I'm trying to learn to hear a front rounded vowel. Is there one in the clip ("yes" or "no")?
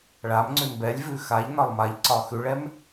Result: no